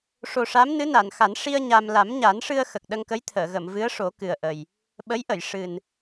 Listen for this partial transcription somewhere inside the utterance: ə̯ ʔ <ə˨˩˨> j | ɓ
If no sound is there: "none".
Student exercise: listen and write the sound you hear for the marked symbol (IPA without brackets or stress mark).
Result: ə˨˩